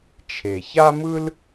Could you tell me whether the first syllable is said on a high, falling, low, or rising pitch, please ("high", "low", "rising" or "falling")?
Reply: low